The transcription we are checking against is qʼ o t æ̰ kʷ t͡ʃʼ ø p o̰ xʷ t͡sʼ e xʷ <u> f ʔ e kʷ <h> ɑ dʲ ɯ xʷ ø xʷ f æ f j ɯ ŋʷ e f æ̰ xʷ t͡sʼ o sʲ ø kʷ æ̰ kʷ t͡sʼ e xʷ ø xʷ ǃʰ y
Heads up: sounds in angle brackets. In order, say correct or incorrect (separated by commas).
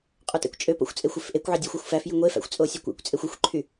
incorrect, incorrect